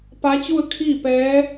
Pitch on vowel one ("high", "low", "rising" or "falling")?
rising